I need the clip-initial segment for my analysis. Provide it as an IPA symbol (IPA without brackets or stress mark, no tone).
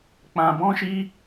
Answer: k͡p